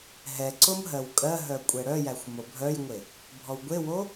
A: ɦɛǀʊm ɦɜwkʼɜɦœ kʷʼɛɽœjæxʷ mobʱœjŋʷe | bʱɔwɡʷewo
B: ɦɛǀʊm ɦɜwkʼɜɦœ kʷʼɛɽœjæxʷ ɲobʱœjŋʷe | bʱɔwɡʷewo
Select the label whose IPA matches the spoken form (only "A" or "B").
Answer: A